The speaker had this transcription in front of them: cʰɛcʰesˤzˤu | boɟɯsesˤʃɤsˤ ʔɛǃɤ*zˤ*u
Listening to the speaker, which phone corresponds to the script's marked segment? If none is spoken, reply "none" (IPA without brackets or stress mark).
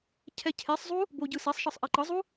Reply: zˤ